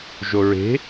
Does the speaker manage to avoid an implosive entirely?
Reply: yes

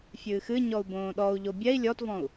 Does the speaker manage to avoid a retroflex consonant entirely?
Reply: yes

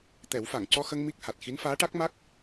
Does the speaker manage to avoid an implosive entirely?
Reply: yes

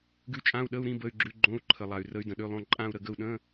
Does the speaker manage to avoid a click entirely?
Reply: no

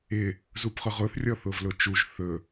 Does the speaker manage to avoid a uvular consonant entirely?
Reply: no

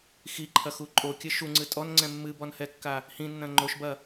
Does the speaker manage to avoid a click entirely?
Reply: no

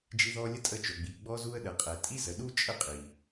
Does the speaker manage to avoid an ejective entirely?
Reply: no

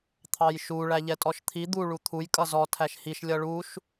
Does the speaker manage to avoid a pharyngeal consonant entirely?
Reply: yes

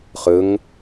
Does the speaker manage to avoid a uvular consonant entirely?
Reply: no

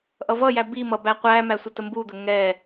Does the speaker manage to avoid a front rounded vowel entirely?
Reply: yes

